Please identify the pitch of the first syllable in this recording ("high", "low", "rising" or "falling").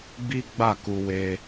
high